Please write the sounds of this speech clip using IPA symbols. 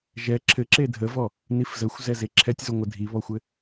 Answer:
ʒɛ ǁʰɘ ǁedʱəvɔ | nifzəxʷzɛ zeǁʰɛtʲzoŋʷə dʱiβɔxʷɘ

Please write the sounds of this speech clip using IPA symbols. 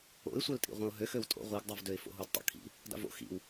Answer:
o̰ɪ̯sʷœltʼḭ ʁʷœ̃ʊ̯ɦø xøwtʼo̰ ʁʷiɡdˤuvdøɪ̯ fo̰ɦudtˤo̰kʰḭ | da̰vo̰ xḭw

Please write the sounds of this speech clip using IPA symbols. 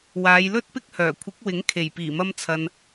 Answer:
waː˨˧jlɵ˥t̚pɪ˥k̚hœː˨˩ kʷʰɪ˨˥k̚wɪ˨˥ŋ kʰe˨˩jpiː˨˩mɐ˧mt͡sʰɐ˨n

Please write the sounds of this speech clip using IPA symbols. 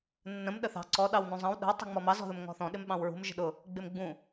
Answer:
nːə̃m ɗəθɑ̤ ǀɔ ɗɑwnũzˤɑ̃w ɗə̤w tˤṳŋ͡mɔmɑ zɔ̤ðʊmŋɔ̤θɔ̃ ɗɪmɓɑ̃wɹṳm ʒə̤ɗʊ | ɡ͡bɪmɡ͡bũ

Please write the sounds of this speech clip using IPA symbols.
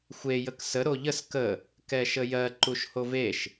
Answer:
xʷe jəksə ɾoʎəs kə | kɛʃəjɜ ǃuʃhoveʃ

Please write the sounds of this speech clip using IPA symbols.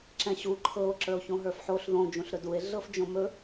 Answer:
ǁɛ̃ɕu ǃʰɤo̯ ǁə˞o̯çõɦə˞fħoɬ ðõ d͡ʒũɬɾɵdue̯ ɮɤfd͡ʒõmɵ

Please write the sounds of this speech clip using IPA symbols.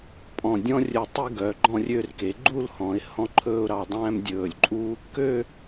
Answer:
pʼɔ̃˧˩dʲɔ̃˥rʲɵ˧˩ tˤi˥ɡœ˩˧ ɡ͡ǃɔ̃˥˧rʲø˥˧rke˩˧ ɡ͡ǃu˥˧l hɔ̃˩˧ɪ̯hɔ̃˥ǃʰɵː˥ʊ̯ ɾɑ˧ dˤæ̃ː˥mdʲɵː˧˩lʲǃʼu˥ | kø˥˧

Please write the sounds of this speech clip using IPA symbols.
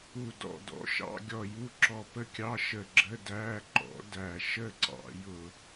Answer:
u˧˩dɔ̰˧˩dɔ̰˨˥ ʃɑ̰˧˥˧ɡʲɔ˧˩ju˧˥˧ ǁɔ˧˩pə˥˩kʲɑ˧˥˧ ʃə˧˩ɡ͡ǁə˧˥˧ dæ˧˥˧ ǃɔ̰˨˥dæ˧˩ ʃə˥˩ǀɑ̰˧˩˧jʊ˧˩˧

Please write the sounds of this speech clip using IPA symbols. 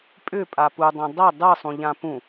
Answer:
pʼʏpʼa pudˤɛ̃ dˤɘ dˤɯsˤũʎã pũ

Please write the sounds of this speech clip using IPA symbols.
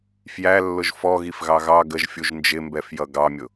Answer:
fjælːʊʒ fɔɣifɣɑ ɣɑ ɡəʒfʲuʒ nd͡ʒɪmbɛfjʌ ɡɑmʲʊ

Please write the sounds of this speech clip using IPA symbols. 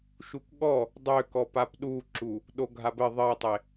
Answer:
ʃukɠɔ | dˤøkɔ papɗuǁu | ɗoɡʱabɘ ðˤɘi̯tˤe

